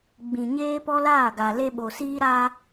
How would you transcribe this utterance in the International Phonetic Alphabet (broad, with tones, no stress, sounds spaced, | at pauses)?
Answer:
ɡ͡b ĩ˨ ɲ eː˦ p ɔ˦ l aː˦˨ ɡ a˨ l e˦ ɓ o˨ s iː˦ ɾ a˦